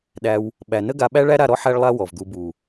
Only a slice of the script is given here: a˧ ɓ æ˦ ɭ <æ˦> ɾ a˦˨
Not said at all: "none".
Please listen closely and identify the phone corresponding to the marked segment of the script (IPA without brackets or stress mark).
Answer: æ˦